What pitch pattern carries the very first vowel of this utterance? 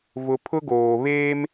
low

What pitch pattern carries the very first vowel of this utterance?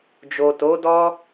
low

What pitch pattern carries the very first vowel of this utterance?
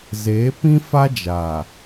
rising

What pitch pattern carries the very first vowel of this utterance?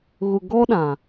low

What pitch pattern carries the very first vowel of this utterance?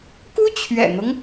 high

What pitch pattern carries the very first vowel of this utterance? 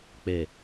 low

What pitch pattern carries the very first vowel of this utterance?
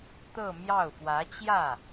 falling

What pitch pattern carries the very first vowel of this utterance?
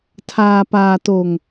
low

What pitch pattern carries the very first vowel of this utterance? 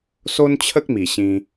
high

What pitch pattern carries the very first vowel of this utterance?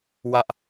high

